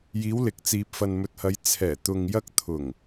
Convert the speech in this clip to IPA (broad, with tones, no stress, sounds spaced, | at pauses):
j iː˨˧ w l ɪ˨ k̚ t͡s iː˨ p̚ f ɐ˨ n m ɵ˨ t̚ h ɐ˨˧ j t͡sʰ ɛː˨˩ t̪ ʊ˨ ŋ j ɐ˧ k̚ t̪ʰ ʊ˨˩ ŋ